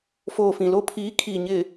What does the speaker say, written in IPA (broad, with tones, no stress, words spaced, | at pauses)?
foː˨ fĩ˨lo˦ pʰiː˨˦kʰiː˨ ɲɪ˨